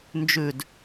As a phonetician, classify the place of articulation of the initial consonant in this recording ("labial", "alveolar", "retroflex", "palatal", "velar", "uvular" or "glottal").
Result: alveolar